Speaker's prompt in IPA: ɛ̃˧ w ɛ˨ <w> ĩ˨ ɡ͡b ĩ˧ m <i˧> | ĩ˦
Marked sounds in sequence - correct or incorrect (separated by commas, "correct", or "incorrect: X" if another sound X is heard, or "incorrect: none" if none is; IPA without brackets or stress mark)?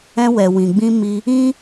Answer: correct, correct